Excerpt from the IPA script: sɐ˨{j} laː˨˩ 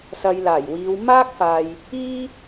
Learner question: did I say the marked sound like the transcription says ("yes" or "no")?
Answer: yes